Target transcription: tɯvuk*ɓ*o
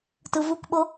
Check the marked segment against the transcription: correct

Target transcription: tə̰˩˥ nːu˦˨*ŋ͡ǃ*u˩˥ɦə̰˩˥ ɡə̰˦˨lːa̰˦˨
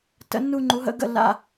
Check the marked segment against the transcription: correct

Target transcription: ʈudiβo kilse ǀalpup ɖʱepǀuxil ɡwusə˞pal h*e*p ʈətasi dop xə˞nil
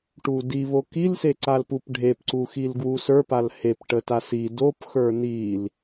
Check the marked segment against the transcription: correct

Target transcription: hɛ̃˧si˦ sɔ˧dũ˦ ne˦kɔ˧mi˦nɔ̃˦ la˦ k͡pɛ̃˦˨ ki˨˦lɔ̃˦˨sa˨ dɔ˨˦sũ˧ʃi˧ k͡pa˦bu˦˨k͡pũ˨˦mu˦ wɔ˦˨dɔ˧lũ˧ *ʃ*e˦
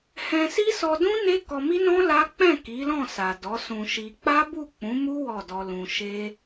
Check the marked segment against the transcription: correct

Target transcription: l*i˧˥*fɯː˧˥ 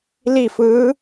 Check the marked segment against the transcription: incorrect: i˥˨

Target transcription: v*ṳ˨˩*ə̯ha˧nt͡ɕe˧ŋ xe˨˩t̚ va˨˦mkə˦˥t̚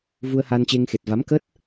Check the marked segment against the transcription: incorrect: u˧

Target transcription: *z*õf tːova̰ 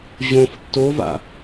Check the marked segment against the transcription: incorrect: ʑ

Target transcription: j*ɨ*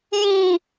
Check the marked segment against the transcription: incorrect: i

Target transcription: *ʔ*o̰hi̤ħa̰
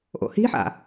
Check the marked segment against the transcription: correct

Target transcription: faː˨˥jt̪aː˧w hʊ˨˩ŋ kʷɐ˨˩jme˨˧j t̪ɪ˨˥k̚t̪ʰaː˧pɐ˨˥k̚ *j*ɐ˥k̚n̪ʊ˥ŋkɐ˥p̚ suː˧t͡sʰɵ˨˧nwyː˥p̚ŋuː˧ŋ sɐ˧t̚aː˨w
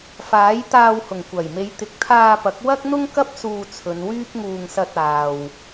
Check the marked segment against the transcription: incorrect: w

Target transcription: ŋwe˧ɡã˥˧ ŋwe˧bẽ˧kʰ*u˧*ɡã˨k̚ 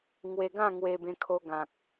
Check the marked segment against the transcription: incorrect: o˧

